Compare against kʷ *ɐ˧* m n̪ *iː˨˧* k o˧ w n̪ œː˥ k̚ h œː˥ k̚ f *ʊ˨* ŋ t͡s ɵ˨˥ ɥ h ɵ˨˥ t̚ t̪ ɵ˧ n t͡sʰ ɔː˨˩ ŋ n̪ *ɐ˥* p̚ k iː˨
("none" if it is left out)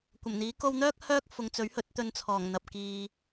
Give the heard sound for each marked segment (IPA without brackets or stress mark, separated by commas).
ɐ˨˩, iː˨˥, ʊ˨, ɐ˨